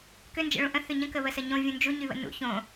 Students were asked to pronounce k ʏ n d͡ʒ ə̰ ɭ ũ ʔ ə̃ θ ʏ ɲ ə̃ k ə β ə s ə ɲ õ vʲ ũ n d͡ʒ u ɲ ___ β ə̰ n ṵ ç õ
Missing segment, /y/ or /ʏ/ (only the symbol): y